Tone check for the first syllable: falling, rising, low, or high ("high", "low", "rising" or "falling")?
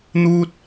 high